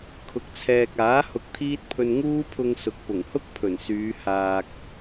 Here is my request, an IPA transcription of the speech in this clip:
kʰ ʊ˨ k̚ t͡sʰ ɛː˨ k̚ aː˨˥ h ʊ˧ k̚ t̪ʰ iː˥ t̚ pʰ ɵ˧ n ŋ uː˥ pʰ ʊ˧ ŋ s ʊ˨˥ k̚ p ʊ˨˩ ŋ h ʊ˥ k̚ pʰ ɵ˨˩ n s yː˨˧ h aː˧ k̚

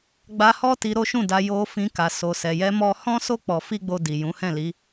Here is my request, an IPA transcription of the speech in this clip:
ɡ͡b a˧ h ɔ˦ t i˧ ɾ o˦ ʃ ũ˦˨ d a˧ j o˧ f ĩ˧ k a˨ s o˨ s ɛ˨ j ɛ˧ m ɔ˧ h ɔ̃˦ s o˦ k͡p ɔ˧ f i˦ ɡ͡b o˧ d i˨ j ũ˨˦ h ɛ̃˦˨ l i˨˦

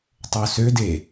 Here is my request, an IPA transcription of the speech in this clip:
tˤ o s ø d e

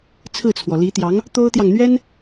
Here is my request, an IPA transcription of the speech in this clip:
t͡sʰ ɹ̩˥˩ t͡sʰ w ɔ˩ l i˧˥ t̪ j ɑ˧˥ ŋ | t̪ o˥ ʊ̯ t̪ j ɑ˨ ŋ n̪ ɥ ɛ˥ n

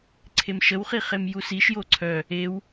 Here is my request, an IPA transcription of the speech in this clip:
ǀʰ e m ʃ ə w χ i χ e m j u s i ʃ j o ǀʰ œ | e w

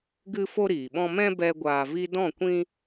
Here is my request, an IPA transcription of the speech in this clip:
ɡ ɨ˦ f o˦ ɾ iː˨ ɓ ɔ̃˦ m ɛ̃˦ b ɛ˧ ɡʷ aː˨ v i˧ d ɔ̃˦˨ kʷ ĩ˦

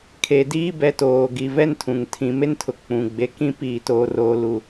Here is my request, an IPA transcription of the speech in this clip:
kʰ e˨ d iː˦ b ɛ˨˦ t oː˨ ɡ i˨ v ɛ˦ n tʰ ũ˨ ŋ tʰ ĩ˨ m e˦ n tʰ ʊ˨ k͡p ũ˨ ɡ͡b e˨ k ĩ˦ p iː˨ t oː˨ r oː˨ l u˨

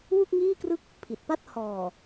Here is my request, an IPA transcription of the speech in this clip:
w u˥˩ k̚ ŋ iː˥˩ k r ɯ˥˩ k̚ | pʰ i˨˩ t̚ p a˥˩ t̚ h ɔː˨˩

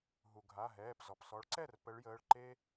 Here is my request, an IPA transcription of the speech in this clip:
ɦ u˩ ɡʱ a˩˧˩ ɦ ɛː˩˧˩ p z ɔ˩ p s ɔ˨˦ ɭ ǀ ɛ˥˩ r p ə˨˦ ɭ j əː˩˧˩ ɭ ǃ e˦

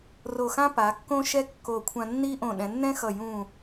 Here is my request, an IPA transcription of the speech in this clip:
r o˧˩ x ã˥ p a˩˧ kː õ˥ ʃ ɛ˥ kː o˧˩ kʷʰ ã˧ nː i˥ ʔ õ˧˩ ɗ ɛ̃˩˧ nː ɛ̃˥ x ʌ˧˩ j ũ˧˩

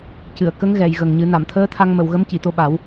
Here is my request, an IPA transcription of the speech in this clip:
c ɨ˨˩˨ ə̯ k ə˧˥ ŋ ɣ ɛ˨˩˨ j ɣ ə˨˩ ŋ ɲ ɨ˨˩˦ n a˨˩˨ m t̪ʰ əː˧˥ t̪ʰ a˧ ŋ m ə˨˩˨ w ɣ ə˧˥ m c i˨˩˨ t̪ o˧ ɓ a˨˩˦ w

